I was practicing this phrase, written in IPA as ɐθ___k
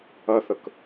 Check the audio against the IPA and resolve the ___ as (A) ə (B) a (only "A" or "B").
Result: A